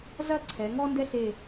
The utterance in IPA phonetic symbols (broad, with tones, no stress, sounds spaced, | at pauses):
z ɐ˥˧ ǀʰ ɛ˩˧ ŋ ɔ˥ n d ɛ˥ ɬ e˧˩